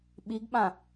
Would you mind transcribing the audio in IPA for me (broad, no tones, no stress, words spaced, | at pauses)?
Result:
ɓiɡɓã